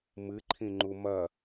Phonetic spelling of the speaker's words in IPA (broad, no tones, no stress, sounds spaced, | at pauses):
m ɨ ǃʰ ĩ ŋ͡ǃ u m ɐ